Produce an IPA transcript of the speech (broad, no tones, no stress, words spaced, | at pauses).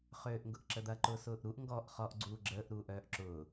χøːʔŋɡʊʔǁəd̪ɐ ǃʊsʊːʔɾuʔ ŋɡɔʔ χɔʔ ɡ͡ǀuːɡ͡ǁəːʔ ɾuːʔœːʔǁʊː